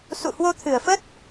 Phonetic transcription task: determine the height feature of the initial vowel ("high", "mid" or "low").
high